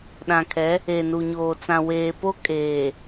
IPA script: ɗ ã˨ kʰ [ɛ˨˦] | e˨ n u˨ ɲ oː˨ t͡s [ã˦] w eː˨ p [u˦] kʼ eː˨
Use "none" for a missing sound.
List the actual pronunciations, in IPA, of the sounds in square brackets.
ɛ˨˦, ã˨, o˦

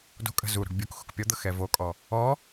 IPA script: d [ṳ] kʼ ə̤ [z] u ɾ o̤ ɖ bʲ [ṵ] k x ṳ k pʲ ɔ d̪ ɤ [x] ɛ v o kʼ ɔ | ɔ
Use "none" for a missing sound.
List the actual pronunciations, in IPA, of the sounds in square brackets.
o̤, z, u, x

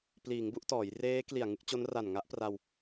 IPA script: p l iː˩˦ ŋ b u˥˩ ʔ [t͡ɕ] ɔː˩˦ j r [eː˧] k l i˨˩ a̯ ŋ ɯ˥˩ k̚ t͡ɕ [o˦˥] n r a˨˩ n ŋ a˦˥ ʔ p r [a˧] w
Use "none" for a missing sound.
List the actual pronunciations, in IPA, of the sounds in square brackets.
t, eː˦˥, o˦˥, a˧

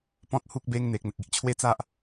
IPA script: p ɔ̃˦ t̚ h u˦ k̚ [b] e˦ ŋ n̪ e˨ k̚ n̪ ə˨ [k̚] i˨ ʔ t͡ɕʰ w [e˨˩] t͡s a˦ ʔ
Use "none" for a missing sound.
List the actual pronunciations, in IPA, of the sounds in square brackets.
b, k̚, e˦

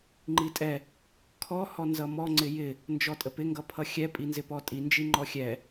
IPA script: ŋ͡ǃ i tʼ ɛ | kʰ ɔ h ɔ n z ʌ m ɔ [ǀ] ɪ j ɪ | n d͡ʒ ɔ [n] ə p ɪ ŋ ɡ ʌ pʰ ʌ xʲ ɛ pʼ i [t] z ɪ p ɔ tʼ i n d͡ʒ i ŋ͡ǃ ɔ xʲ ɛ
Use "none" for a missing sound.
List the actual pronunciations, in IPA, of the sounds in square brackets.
ŋ͡ǀ, tʼ, n

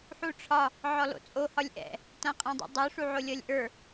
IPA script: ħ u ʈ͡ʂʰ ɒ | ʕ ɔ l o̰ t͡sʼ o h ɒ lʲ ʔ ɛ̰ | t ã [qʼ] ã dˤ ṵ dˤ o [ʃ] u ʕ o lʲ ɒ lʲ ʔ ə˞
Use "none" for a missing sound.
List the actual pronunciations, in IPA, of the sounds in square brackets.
qʼ, ʂ

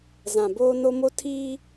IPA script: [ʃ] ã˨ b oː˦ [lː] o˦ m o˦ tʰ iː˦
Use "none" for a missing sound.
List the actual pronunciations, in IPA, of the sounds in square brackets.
z, n

